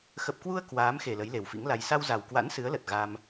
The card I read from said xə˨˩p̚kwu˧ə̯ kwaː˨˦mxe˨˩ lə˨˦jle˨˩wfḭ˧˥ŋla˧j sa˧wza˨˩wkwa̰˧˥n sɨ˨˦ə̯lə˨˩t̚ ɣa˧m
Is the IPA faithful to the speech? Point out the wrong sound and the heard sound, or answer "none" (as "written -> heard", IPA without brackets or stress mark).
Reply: none